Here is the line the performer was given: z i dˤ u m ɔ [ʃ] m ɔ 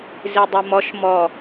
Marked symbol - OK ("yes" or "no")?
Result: yes